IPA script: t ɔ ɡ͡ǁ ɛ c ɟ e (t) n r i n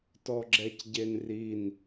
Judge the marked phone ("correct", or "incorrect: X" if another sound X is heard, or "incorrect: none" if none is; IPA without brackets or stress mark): incorrect: none